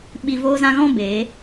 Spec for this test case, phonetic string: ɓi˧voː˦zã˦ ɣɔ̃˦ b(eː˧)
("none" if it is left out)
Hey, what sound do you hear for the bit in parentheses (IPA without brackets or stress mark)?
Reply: eː˨˦